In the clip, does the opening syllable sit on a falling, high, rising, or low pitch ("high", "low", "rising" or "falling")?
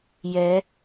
rising